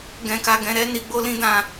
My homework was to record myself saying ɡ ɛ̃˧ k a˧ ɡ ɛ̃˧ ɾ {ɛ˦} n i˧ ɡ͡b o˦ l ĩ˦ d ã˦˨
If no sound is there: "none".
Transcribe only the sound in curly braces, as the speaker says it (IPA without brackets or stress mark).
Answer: ɛ˦